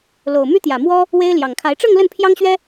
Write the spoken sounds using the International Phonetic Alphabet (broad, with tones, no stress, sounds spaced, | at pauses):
l o˨˩ ʊ̯ m y˥ t̪ j ä˨˩ m w ɔ˥ | w e˥ ɪ̯ l j ɑ˨˩ ŋ kʰ a˧˥ ɪ̯ ʈ͡ʂ ɤ˥˧ ŋ l ə˥˩ n pʰ j ɑ˥ ŋ ɕ ɥ ɛ˥